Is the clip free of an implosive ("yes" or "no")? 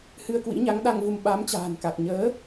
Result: no